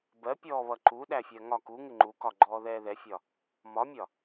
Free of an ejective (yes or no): yes